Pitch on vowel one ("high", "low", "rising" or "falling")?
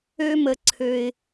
high